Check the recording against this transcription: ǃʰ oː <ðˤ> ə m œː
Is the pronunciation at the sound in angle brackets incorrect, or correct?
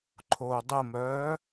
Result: incorrect